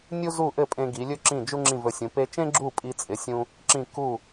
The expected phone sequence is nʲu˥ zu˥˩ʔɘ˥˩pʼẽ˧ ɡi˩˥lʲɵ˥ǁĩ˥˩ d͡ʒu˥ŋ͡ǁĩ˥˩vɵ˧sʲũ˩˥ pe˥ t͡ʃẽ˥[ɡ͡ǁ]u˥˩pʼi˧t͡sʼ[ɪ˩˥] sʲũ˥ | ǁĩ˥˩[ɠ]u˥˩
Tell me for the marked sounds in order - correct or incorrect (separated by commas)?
correct, correct, incorrect